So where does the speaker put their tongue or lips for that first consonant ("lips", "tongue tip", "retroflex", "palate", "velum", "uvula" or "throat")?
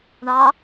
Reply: retroflex